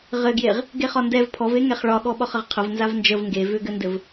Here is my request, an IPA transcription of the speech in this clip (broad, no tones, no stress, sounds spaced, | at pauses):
ʁ ɘ ɡ j e ʁ | ɡ e χ ɒ n d ɛ v pʰ ɔ v e ŋ ɛ χ ɭ ɒ ɠ ɔ ɓ ɒ χ ə ʁ qʰ ə v n z a v n d͡ʒ ə v ŋ ɡ e v ʏ ɡ ɘ n d ɘ v